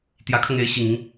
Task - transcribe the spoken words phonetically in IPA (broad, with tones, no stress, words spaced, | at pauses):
t̪jä˧˥kʰɤ˧ŋe˧˥ɪ̯ ɕi˨˩ŋi˦ŋ